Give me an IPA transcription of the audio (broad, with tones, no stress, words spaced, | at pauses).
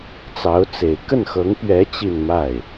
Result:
t͡sɑ˧˥ʊ̯t͡se˨˩ɪ̯ kə˥˩nxɤ˧˥ŋpɥɛ˧˥ t͡ɕi˥˧nma˥˩ɪ̯